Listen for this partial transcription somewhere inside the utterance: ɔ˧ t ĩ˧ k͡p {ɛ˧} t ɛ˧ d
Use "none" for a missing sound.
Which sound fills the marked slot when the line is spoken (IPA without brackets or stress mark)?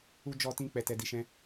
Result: ɛ˧